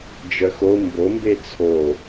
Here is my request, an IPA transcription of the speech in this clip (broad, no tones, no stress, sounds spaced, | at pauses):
d͡ʒ œ x o m b o m b e t͡sʰ o